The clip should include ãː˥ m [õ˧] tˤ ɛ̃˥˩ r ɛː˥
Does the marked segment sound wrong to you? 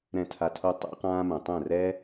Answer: yes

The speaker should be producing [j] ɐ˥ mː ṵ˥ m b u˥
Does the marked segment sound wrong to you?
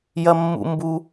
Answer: no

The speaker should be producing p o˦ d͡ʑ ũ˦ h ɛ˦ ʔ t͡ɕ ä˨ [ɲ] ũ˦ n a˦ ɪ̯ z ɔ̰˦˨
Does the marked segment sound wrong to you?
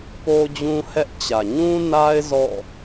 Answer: no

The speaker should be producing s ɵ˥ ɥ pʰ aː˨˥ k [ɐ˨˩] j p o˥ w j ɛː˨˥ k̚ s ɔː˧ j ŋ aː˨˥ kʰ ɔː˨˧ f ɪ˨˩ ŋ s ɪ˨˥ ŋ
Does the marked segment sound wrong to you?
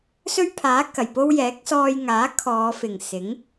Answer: no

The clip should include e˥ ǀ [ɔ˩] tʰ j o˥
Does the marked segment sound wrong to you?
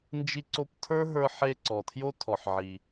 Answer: no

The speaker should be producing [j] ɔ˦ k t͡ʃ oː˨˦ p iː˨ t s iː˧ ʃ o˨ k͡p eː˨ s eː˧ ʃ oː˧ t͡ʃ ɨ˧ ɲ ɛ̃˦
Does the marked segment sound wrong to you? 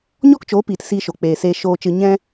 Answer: yes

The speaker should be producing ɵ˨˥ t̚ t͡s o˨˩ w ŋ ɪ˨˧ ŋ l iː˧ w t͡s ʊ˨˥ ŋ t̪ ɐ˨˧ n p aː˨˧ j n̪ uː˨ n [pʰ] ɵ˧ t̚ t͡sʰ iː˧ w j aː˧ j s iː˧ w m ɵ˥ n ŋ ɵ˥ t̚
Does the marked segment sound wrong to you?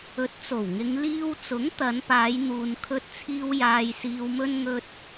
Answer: yes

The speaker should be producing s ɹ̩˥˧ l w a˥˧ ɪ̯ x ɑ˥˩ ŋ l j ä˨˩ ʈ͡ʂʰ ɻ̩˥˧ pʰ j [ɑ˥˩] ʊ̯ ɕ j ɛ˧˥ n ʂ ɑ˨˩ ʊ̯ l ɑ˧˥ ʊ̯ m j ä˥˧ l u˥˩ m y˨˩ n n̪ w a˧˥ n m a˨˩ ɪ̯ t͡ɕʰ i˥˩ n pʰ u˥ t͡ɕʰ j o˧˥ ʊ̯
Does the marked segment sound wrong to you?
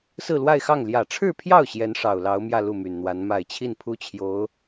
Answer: no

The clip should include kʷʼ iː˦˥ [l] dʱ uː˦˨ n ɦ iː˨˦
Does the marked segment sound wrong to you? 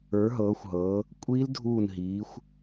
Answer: no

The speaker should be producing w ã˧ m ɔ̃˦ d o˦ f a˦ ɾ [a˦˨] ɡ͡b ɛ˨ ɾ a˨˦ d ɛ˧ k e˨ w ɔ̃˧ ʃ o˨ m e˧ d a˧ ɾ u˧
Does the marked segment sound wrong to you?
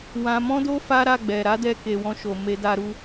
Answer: no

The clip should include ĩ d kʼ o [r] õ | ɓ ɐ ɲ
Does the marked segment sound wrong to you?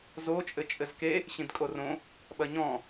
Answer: no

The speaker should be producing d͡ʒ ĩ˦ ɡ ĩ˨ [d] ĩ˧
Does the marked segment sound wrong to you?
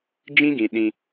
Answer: yes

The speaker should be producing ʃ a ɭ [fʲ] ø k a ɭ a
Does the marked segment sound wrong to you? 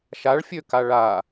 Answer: no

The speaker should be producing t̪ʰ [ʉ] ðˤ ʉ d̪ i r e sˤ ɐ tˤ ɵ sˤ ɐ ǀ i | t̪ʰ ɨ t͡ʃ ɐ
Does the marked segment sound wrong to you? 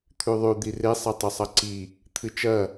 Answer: no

